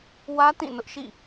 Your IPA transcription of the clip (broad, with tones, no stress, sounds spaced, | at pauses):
w ä˦ t ĩ˦˨ n ʊ˦ ʔ ʃ ḭ˦˨